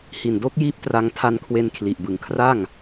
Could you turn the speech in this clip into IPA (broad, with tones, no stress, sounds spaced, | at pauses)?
h i˨˩ n d o˦˥ k̚ j iː˦˥ p̚ t r a˧ ŋ tʰ a˧ n kʰ w e˧ n kʰ l i˨˩ ʔ b ɯ˩˦ ŋ kʰ r a˥˩ ŋ